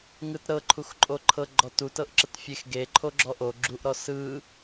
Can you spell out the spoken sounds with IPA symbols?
ŋ ɯ t ɾ ɤ ǃʰ u x ǃʼ o ǃʰ ɤ ɡ͡ǃ ɔ t u t ɤ ʔ ǁ ə t fʲ e x ɡ e ǃʰ o ɡ͡ǁ ɔ ʔ o ɡ͡ǁ u ʔ ɾ ɔ s ɯ

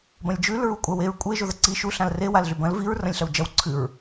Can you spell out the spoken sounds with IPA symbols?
b ɐ̃ lʲ d͡ʒ ʉ l ɹ u kʷʼ a w e ɹ kʷʼ e ʒ o ð ɐ ǀ i ʃ u ɬ ã l r e w a l ɮ ʉ b ɐ̃ l v i ɹ r ɐ̃ lʲ ɬ ɐ w d͡ʒ ɐ w ǀʰ ɨ ɹ

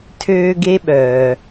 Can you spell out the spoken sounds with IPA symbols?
tʰ øː˥ ɡ e˥ ɓ œː˩

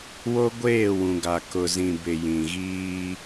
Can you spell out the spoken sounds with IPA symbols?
w o˦ ɡʷ eː˦˨ w ũ˨ ɡ a˨ k ʊ˨ z ĩ˨ b ɪ˨ j ĩ˨ ɣ iː˦

